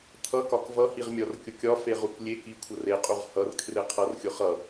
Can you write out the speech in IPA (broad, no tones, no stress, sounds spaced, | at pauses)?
t̪ʰ ʌ k ɒ k v ʌ h i ʁ mʲ ɒ r kʲ ʊ kʲ ɒ f e ʁ u k lʲ e k i kʷʰ ʌ r e qʼ u ʁ h ʌ r kʰ r e qʰ ʌ r xʲ ʊ χ ʌ